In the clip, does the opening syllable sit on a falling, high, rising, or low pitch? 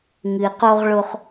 low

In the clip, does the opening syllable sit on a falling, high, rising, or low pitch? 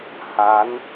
rising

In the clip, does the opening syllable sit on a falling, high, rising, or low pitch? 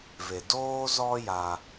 low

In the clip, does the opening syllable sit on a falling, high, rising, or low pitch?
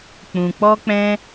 low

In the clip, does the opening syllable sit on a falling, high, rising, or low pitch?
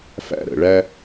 high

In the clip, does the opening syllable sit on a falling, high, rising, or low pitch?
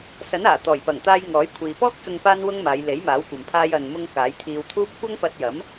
rising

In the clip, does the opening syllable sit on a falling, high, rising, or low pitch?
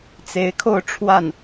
rising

